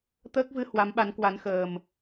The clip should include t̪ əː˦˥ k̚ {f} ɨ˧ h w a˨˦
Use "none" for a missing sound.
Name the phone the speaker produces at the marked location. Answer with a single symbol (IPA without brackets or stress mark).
v